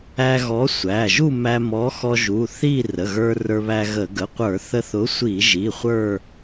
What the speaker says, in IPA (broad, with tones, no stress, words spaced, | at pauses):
æ˧ɣɔ˨˥ sʷæ˩˧˩ʒu˥˧ mæ˧mɔ˨˥xɔ˧ ʒu˩˧˩ θi˥˧ rə˩˧˩ɣə˞˧ rə˞˧βæ˧ɣə˧˩˧ ɡə˩˧˩qʷə˞˧˩˧ θə˧θʊ˨˥sʷi˧˩˧ʒi˩˧˩ χʷə˞˥˧